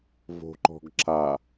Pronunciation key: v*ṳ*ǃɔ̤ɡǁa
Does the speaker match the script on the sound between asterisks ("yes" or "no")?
no